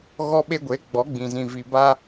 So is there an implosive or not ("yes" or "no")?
yes